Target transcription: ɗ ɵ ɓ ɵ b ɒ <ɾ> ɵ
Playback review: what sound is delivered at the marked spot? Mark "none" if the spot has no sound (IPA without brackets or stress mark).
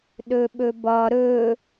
ɾ